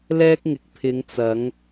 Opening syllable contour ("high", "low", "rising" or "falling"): high